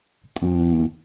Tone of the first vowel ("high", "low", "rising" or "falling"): low